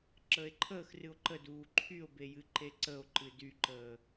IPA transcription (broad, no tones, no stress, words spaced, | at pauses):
ǁəːe̯ǃʰəːxrɨo̯ ǃəduː ǃʰyo̯be jɨǃeǀəo̯ǃɨd yǃəː